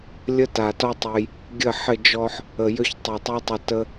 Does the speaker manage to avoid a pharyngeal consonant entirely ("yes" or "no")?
no